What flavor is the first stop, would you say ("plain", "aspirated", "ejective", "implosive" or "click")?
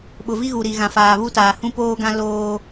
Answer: implosive